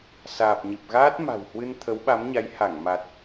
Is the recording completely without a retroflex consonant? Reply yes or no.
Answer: yes